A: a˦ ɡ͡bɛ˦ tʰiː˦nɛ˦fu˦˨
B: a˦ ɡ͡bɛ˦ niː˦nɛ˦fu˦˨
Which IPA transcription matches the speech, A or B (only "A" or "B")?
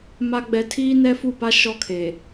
A